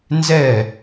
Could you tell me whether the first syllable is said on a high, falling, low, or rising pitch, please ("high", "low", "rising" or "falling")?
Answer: falling